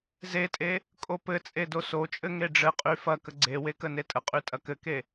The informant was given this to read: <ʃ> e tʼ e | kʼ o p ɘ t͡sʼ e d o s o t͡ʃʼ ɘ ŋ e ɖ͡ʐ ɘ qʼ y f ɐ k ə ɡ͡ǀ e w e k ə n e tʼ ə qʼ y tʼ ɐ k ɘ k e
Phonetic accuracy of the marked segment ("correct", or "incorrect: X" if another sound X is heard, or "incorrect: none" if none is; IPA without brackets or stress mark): incorrect: z